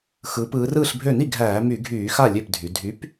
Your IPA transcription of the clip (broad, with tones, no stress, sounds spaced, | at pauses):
x ɯː˩˧ p ɯː˩˧ r ɯː˥˩ ɬ bʱ ø˥˩ n i˥˩ ɡʱ æː˧˩˧ m y˧˩˧ ɡʱ yː˧˩˧ x a˥˩ lʲ ø˥˩ p dʱ y˩˧ dʱ y˨˥ p